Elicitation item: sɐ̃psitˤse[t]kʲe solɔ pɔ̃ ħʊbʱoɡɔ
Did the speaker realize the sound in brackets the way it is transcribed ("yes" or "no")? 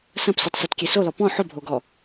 yes